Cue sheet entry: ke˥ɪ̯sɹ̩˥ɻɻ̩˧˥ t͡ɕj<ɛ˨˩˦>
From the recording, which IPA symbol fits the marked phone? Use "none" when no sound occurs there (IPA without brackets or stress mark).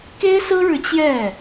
ɛ˥˩